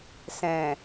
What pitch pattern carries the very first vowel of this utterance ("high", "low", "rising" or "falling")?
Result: low